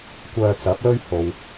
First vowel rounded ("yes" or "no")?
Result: yes